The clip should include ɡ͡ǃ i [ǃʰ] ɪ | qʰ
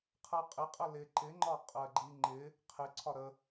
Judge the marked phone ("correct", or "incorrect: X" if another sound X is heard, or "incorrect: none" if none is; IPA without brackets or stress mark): incorrect: ŋ͡ǃ